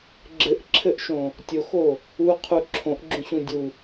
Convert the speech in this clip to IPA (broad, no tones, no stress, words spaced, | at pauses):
ɡ͡ǁɘʔǁʰɘʔʃõ | tʲoxo | uqʰu ǁʰõʔɡ͡ǁũɕũ dʲu